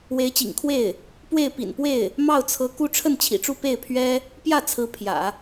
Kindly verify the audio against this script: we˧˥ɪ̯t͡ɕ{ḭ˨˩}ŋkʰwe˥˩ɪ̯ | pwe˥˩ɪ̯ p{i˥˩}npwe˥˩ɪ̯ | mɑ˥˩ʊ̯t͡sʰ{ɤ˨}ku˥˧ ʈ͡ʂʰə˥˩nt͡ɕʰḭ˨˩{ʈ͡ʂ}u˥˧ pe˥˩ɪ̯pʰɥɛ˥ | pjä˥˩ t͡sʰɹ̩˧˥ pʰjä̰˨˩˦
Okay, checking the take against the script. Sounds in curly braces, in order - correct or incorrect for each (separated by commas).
correct, incorrect, incorrect, correct